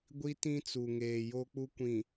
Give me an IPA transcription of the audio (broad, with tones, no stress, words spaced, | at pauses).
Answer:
ɡʷi˦tĩ˦t͡su˨ ŋeː˨jo˦k͡pu˦kʷĩ˨